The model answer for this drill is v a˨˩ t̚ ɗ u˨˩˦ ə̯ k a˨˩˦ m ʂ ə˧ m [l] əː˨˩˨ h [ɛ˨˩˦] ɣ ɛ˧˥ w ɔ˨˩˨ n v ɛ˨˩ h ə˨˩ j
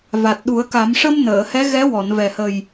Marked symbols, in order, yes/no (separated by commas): no, no